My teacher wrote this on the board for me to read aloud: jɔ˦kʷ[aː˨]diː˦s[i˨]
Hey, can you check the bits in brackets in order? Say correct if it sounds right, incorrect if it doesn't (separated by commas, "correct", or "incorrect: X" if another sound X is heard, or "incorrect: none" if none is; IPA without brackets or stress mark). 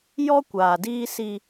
correct, incorrect: i˦